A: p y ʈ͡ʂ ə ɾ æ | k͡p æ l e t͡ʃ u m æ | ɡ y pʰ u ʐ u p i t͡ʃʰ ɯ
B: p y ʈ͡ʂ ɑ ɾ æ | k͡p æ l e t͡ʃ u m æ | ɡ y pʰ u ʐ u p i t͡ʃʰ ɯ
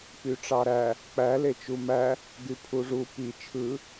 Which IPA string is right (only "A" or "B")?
B